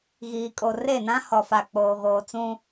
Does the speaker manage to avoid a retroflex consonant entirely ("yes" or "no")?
yes